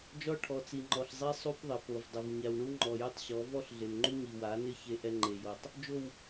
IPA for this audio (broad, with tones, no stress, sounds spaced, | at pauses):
d͡ʒ ɔ˦ ʈʰ ɔ˨ t͡s i˨ ŋ͡ǃ ɔ˨ ɬ zˤ e˦ sˤ u˦ p ðˤ ɪ˨ p o˨ v dˤ ʊ˨ v ɲ a˨ w ɳ u˦ ŋ͡ǃ ɔ˨ j ʊ˦ tˤ ɕ ɔ˨˦ v ɔ˦ ɬ ɮ ɪ˨ n ŋ͡ǃ u˦ ɲ i˨ w a˨˦ n ɪ˦ ç e˦ ʔ ɛ˦ ŋ͡ǃ e˨ j o˨ tˤ | d͡ʒ o˨ w